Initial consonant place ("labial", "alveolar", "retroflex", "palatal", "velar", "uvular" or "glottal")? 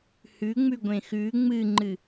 glottal